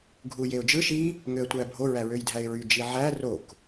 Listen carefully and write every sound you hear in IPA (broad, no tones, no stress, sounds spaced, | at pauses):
ɡʱ u j e ʊ̯ d͡ʒ ɯ ʃ i | ŋ ø ə̯ tʷ æ bʱ o ɹ æ ɹ ø j dʱ æ ɪ̯ ɹ y d͡ʒ i ʕ æ r o k